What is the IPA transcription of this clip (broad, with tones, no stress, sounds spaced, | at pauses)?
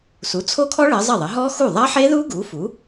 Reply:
s u˩˥ t͡sʰ o˦˥ kʰ ɔ˦˥ ɭ ɘ˩˧ zˤ ɐ˥˩ ðˤ ɘ˩˥ ɦ ɔ˦˥ x u˥˩ ðˤ ɐ˦˥ ħ e˦˥ ð u˦˥ ɡ u˩˥ f u˩˥